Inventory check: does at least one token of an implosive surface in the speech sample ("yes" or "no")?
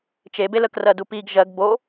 no